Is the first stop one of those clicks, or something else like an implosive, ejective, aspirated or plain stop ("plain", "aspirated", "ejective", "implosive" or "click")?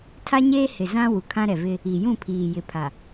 aspirated